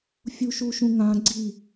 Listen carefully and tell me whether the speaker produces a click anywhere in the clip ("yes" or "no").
yes